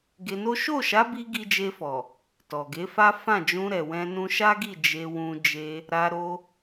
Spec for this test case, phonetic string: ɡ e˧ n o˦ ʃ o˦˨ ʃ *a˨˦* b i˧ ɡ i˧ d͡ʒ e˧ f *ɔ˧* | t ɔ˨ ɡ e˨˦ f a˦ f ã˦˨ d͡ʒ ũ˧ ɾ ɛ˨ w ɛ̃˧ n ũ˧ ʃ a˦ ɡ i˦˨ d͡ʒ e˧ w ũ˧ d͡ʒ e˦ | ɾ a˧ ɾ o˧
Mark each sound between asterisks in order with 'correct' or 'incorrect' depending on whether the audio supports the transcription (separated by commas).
correct, incorrect